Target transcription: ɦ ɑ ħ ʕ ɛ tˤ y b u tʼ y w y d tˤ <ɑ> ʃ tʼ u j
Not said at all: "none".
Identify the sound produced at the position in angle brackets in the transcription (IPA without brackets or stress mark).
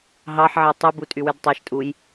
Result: ɑ